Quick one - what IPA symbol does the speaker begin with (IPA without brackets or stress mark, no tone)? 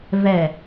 v